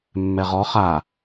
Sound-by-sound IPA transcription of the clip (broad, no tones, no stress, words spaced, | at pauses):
mːɛʁɔ χa